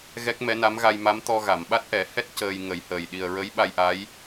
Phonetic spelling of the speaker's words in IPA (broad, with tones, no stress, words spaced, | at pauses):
ɣɛ˦˥k̚mɛ˧˥na˧˥m ɣa˧jma˧˥mt̪ɔ˧ ɣa˨˩˨mɓa˦˥t̚ʔɛ˨˩˦hɛ˦˥t̚ cəː˧jŋə˨˩˦jhəː˨˩j ɗi˨˩ə̯ ɹə˧˥j ɓa˧jʔa˧˥j